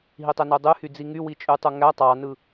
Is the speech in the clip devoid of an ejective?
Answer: no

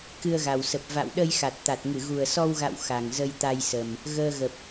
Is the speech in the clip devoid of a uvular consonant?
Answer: yes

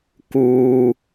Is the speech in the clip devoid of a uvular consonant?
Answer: yes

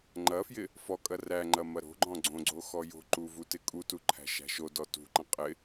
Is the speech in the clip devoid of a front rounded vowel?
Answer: yes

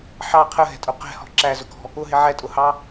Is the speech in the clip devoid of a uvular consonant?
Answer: no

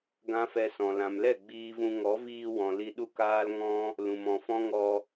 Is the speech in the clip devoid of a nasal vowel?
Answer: no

